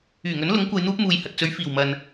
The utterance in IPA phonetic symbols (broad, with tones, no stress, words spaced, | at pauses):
yː˨˩ŋɵ˨˥nlʊ˨˥ŋ kʷɐ˧jn̪uː˥p̚ muː˨jhɐ˨t̚t͡sɵ˨˧ɥ fiː˨˩wmɐ˨n